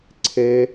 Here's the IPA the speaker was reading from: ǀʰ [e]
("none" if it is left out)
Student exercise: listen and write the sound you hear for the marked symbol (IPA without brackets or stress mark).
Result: e